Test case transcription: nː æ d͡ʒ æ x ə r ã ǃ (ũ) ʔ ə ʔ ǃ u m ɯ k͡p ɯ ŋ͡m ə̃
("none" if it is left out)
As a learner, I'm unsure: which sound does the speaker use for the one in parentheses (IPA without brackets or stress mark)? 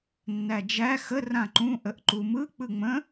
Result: ũ